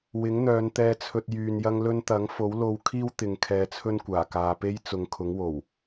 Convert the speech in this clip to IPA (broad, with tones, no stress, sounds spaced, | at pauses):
w ɪ˨˥ ŋ n̪ œː˨˧ n t̪ ɛː˧ t͡sʰ ɵ˧ t̚ j yː˧ n j ɐ˥ ŋ l ɵ˥ n t̪ ɐ˨˥ ŋ f o˨˥ w l o˧ w kʰ iː˥ w t̪ ɪ˧ ŋ kʰ ɛː˧ t͡sʰ ɵ˥ n kʷ aː˨˩ k aː˨ p e˥ j t͡s ʊ˨˧ ŋ kʰ ʊ˨˥ ŋ w o˨˩ w